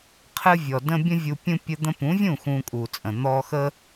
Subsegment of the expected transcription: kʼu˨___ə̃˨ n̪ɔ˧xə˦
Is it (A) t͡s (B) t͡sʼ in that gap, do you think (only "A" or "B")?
B